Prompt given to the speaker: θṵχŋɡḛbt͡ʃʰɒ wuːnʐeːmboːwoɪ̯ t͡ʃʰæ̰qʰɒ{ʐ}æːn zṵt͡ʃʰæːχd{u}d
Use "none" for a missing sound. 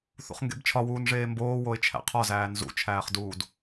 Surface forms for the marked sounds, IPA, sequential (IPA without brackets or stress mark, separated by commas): z, uː